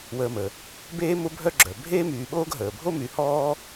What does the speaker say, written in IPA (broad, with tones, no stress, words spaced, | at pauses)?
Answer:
wəː˨mə˩ | beː˦ mʊ˦ bʱœ˦ɡ͡ǁœ˩ bʱeː˥myː˨ɓoː˥ɡ ɦəː˩bʱo˥my˨ hɔː˥